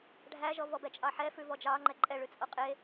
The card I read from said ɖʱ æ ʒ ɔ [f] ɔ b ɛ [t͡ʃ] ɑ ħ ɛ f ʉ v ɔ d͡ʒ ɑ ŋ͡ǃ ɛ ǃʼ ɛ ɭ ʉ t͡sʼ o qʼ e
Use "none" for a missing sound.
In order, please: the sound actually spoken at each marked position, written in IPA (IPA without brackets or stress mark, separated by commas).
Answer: v, t͡ʃʼ